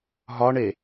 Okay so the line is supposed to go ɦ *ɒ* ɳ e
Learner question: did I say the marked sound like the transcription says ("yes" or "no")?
yes